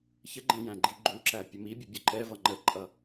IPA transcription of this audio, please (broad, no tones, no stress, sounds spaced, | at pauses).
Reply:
ç ə ɡ͡ǃ ɛ̃ j æ̃ ɡ͡ǃ i ɡ͡ǃ u ǁ æ pʲ ə m i bʲ u bʲ ʊ ǃ ɛ v ʌ ŋ͡ǃ ə ǃʼ ʌ